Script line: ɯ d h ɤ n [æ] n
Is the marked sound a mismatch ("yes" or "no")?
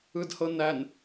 no